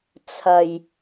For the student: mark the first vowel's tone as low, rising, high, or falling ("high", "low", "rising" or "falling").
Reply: low